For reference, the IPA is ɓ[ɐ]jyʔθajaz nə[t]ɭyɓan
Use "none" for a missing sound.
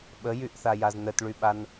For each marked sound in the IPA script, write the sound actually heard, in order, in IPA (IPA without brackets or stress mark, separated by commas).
ə, t